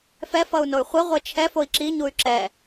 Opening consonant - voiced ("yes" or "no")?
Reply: no